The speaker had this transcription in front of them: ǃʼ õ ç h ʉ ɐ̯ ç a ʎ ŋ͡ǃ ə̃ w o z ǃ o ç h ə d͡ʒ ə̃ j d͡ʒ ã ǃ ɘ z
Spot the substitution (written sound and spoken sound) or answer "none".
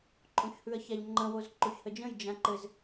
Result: none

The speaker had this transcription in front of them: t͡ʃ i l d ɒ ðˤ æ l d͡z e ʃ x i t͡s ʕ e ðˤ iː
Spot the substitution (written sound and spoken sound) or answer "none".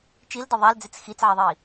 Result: ʃ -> t͡s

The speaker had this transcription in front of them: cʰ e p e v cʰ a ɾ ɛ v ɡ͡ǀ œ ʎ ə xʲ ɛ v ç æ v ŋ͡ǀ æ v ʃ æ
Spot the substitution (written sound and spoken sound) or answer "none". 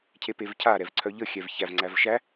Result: ɡ͡ǀ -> ǀʰ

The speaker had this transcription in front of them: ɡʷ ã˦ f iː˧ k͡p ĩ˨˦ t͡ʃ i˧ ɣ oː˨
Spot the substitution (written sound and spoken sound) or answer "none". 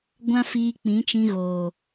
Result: i˧ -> ĩ˧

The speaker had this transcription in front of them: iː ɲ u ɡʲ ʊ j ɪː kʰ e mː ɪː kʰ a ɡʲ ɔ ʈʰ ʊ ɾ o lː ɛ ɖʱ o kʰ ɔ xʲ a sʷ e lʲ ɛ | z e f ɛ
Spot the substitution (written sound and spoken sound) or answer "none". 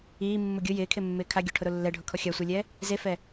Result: ɲ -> mː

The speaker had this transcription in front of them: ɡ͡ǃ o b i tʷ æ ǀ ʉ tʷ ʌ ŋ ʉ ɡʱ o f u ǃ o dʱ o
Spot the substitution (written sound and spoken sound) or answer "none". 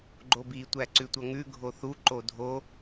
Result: f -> θ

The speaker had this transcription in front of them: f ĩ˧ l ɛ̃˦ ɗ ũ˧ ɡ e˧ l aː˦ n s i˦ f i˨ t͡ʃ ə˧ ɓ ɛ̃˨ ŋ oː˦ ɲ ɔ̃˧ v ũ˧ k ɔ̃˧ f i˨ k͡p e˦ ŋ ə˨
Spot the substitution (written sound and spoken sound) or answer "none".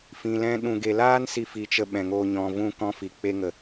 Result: none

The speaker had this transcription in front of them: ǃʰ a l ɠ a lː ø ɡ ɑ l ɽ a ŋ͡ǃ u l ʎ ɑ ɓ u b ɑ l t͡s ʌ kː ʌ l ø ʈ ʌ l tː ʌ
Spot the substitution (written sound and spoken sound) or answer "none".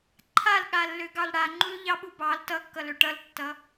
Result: t͡s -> t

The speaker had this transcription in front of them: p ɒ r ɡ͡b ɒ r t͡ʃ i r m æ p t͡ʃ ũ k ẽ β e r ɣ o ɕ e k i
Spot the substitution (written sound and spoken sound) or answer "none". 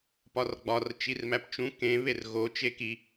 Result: ɕ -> t͡ʃ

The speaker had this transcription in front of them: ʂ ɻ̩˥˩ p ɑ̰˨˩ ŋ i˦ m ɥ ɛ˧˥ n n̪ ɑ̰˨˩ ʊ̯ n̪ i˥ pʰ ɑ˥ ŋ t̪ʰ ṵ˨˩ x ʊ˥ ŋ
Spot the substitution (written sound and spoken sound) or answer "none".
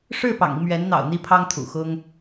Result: none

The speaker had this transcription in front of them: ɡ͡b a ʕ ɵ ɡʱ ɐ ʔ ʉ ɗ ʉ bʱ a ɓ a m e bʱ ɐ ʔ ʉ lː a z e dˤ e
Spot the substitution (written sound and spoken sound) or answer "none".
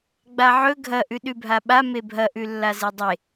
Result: none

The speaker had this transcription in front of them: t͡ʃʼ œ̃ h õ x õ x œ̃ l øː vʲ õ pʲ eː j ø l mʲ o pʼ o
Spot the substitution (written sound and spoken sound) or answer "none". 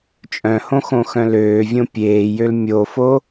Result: pʼ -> f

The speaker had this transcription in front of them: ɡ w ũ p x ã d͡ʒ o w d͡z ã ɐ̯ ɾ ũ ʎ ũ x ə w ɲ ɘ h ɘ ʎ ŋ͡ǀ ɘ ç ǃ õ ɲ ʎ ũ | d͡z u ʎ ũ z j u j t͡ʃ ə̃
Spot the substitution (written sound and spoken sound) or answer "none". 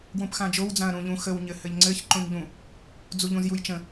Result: none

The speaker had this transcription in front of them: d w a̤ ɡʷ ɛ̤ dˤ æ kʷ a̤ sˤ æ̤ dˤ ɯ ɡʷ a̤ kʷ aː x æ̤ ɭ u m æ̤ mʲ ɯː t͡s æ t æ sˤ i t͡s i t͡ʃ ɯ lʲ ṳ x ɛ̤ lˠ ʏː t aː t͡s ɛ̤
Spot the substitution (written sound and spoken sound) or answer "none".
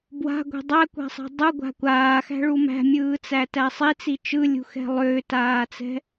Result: d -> b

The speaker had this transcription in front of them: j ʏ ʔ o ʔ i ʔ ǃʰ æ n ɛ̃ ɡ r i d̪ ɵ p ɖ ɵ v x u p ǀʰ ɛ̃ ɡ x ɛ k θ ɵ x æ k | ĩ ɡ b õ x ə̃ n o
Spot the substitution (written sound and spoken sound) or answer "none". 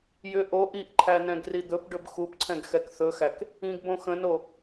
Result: v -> b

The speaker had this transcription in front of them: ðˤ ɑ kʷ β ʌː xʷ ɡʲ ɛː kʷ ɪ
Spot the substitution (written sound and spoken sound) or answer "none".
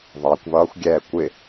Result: none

